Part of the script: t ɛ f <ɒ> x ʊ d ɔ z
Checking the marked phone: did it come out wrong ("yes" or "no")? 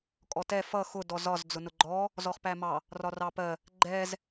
yes